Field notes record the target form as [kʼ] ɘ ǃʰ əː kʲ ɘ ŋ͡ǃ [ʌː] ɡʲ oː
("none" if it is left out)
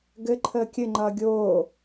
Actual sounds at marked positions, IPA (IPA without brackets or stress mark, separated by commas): ɡ, ʌː